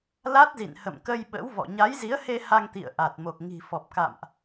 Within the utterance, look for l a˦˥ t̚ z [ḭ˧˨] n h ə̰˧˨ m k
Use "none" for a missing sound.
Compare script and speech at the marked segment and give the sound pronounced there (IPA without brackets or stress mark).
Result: ḭ˧˨